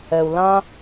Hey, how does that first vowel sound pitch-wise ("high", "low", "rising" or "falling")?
low